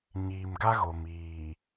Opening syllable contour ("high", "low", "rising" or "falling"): low